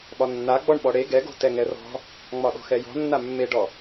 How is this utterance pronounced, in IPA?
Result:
ɓɒnːa ɡ͡bɔɳɓɔɽe ɡɛɡo̤ tɛŋɛrɔ̤ | ŋ͡mɒɗɔ̤xɛjɔ̤ nːamːeɖɔ

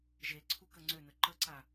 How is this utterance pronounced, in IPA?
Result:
ʒe ǀʰukəŋ͡ǀønə ǃəǀa

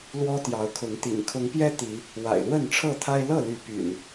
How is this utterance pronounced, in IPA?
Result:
lwɔ˦t̪jɑ˨˦ʊ̯kʰʊ˨˦ŋt̪ḭ˨˩ŋ kʰʊ˨˦ŋpjɛ˦ t̪i˨˦ | wa̰˨˩ɪ̯lwə˥˨nʈ͡ʂʰɤ˥˨t̪ʰa˦ɪ̯ lɤ˥˨ly˨˦ py̰˨˩n

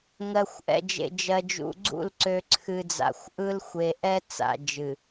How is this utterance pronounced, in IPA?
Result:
ŋɜ˨xʷʔɛ̰˨d͡ʒḛ˨ d͡ʒɜ˨d͡ʒṵ˨ɡ͡ǀṵ˦˨l ǀø˨ǀʰɨ˨ d͡za̰˨xʷʔɯ˦l xʷe˨ʔɛ˦t͡sa̰˨d͡ʒɨ˨

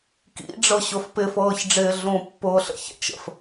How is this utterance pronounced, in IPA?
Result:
kḭɖ͡ʐɤɕʊf pɪfɤːçɖ͡ʐɪː ɮũpːʊːɬə̰çɛ̰t͡ʃ ə̰f

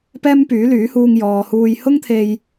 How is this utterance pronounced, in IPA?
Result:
pɛː˥mpyː˨˥lyː˨˥huː˧ŋ jɔː˨huː˧j hʊ˥ŋt̪ʰe˧j

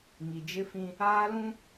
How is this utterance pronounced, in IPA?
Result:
ŋi˨d͡ʒɪ˦fĩ˦ | aː˦lũ˦

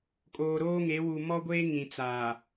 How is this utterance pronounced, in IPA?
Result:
kʼoː˨ ɾoː˦ŋe˨˦wu˨ mɔ˦ɡʷeː˦ ŋĩ˨t͡saː˨

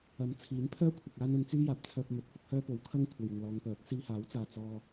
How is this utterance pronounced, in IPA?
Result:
ɐ˨˥mt͡sʰiː˨˥n pʰœː˥kʷʰɐ˨k̚ aː˥nɵ˧nt͡syː˥ jaː˨p̚t͡sʰœː˧p̚ mɵ˨t̚fʊ˧k̚hœː˥ po˨wkʰɐ˥ŋ kʷʰɐ˨jɪ˨ŋlɔː˨˧ŋ pœː˨˥k̚ siː˧haː˨˥wt͡saː˨ t͡sɔː˧

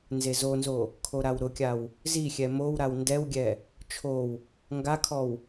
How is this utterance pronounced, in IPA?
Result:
nzezonzo | kʰoɾawɾʊkʲaw | zixʲɛ mowɾaw ndɛwɡʲɛ | t͡ʃʰow | ŋɡakʰɔw

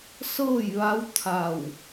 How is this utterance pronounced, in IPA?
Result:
sɤː˥˨jʋa˧˥w t̪ʰa˧˩w

